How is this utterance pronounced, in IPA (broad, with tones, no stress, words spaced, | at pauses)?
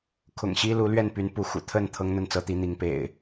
kʰʊ̰˨˩ŋɕi˦ lu˨˦lɥɛ˥˨npy˨˦n pu˨˦xṵ˨˩ t̪ʰə˥˨n t̪ʰɤ˦ŋn̪ə˥˨nt͡sɤ˦t̪i˨˦ n̪i˨˦ŋpḛ˨˩ɪ̯